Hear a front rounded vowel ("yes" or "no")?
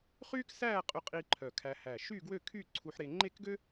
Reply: yes